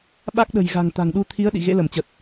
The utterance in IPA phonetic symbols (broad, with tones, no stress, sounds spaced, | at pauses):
ɓ a˦˥ k̚ ɗ ə̤˨˩ j ɣ a̤˨˩ ŋ t̪ a̤˨˩ ŋ ɗ u˧ t̪ʰ i˨˦ ə̯ ɗ ḭ˧˨ ɣ ḛ˧˥ l ə˧˩ m t͡ɕ ə˨˩ t̚